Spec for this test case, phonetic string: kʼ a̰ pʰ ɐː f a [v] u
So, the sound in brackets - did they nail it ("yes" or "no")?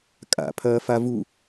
yes